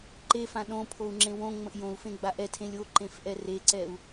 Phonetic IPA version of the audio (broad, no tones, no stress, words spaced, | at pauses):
ǃefã ɗõpʰou̯ŋ͡ǁẽ wõŋ͡mə̃ʔ jõu̯fẽɡ͡ba ʔɛtʰẽlʲ oǃẽfʔɛ reǀɛu̯